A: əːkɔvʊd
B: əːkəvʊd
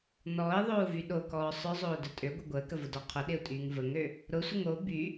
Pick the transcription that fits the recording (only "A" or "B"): B